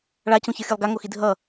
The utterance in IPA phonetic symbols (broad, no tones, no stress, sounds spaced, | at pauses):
ɭ a c ũ ç ʌ xʲ ɯ lˠ ɡ a ŋ o x i dʱ ʌ